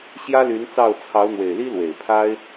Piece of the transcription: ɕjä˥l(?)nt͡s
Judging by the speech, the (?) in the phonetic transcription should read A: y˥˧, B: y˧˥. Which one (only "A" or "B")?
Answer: B